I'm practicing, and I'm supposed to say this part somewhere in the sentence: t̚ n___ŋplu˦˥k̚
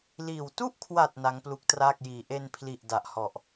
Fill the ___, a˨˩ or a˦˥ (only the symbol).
a˦˥